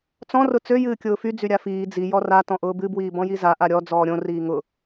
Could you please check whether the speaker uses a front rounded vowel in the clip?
yes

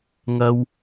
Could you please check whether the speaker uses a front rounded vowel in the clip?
no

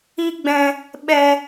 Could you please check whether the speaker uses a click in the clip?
no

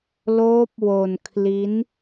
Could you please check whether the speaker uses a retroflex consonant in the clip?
no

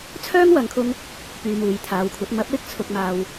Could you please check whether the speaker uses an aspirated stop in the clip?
yes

